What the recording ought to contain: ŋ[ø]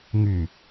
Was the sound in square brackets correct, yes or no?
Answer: no